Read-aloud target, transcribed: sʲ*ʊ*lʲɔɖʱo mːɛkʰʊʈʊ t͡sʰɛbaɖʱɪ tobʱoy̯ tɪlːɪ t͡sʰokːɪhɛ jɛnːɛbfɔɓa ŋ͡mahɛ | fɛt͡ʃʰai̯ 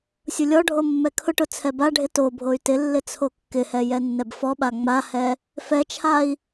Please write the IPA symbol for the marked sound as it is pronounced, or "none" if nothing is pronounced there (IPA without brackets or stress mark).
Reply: ʊ